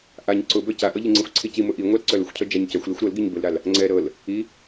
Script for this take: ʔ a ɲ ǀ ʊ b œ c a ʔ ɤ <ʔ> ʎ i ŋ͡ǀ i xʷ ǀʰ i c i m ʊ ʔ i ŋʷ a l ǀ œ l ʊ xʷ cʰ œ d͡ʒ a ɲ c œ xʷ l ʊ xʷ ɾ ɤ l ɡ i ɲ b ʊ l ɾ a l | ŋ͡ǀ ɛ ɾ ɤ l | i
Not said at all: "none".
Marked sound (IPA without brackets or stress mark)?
none